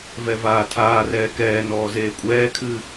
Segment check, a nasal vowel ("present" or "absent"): absent